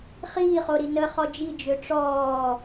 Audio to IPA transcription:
χ iː χ o ɾ i n ə χ ɔ d͡ʒ i d͡ʒ ø ʈ͡ʂ ɔː

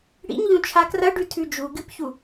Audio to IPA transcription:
ɽ ḭ ɲ ʎ ũ t͡ʃʰ a k r ɐ ɖ ʉ tʰ ʉ d͡ʒ u ɡ ɨ p ç u

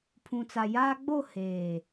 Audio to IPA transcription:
pʰ ũ˨ t͡s a˨ j aː˦ ɡ͡b o˦˨ h eː˨

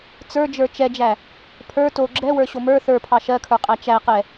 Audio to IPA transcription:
t͡s ə˞ d͡ʒ ə˞ t͡ʃ ɛ d͡ʒ æ | pʰ ə˞ t o ɡ͡ǁ ɛ w ə˞ ɕ o m ə˞ θ ə˞ pʰ ɑ ʃ ɜ kʰ ə˞ qʼ æ t͡ʃ æ q ɛ

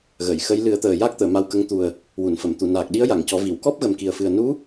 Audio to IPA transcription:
ɣ ə˨˩˨ j x ə˧˥ j l ɨ˨˩˦ ə̯ t̪ əː˨˩ j a˦˥ k̚ t̪ əː˨˩˨ m a˧ w k ə˧˥ ŋ t̪ u˨˩ ə̯ | w u˨˩˨ n f ə˨˩˨ m t̪ u˨˩˨ n aː˨˩ k̚ ɗ i˧˥ ə̯ j a˨˩˨ ŋ c ɔ˨˩˦ v i˨˩˨ w k ɔ˦˥ p̚ ɣ ə˨˩ m k i˨˩ ə̯ f ɨ˨˩ ə̯ n u˧˥

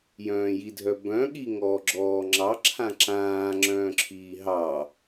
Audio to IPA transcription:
j œ̃ː j i dʱ œ b œ̃ ɠ i ŋ ɔː ɡ͡ǁ ɔː ŋ͡ǁ ɑ ǁʰ ã ǁ ãː ŋ͡ǁ œ̃ː ǁʰ iː ɦ ɑ

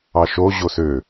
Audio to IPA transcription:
ɑ ʃ o ʑ o s ø

